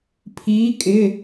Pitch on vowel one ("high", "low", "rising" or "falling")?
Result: rising